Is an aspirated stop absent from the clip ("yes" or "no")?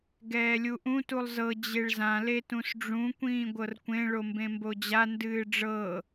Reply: yes